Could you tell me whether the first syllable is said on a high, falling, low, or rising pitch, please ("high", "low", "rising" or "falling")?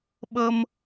high